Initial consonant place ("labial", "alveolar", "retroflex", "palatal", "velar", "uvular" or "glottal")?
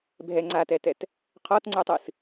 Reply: labial